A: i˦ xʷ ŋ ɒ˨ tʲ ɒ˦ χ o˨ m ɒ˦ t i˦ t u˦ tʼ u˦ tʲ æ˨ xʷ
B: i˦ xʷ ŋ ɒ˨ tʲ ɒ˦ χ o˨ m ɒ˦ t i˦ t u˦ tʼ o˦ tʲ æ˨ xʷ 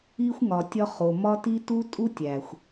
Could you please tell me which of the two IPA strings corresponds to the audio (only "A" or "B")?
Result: A